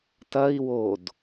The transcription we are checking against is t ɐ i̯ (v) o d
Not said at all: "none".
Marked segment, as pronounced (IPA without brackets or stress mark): w